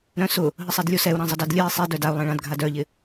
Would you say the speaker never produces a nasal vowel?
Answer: no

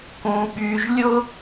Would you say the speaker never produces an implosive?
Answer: no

